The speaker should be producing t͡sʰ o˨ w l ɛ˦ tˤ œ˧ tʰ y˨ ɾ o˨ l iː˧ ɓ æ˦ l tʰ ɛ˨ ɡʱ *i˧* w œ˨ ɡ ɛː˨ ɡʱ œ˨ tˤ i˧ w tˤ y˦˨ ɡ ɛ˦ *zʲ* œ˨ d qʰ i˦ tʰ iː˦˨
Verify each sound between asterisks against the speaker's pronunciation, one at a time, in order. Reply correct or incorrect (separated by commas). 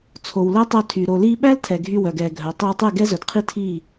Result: incorrect, incorrect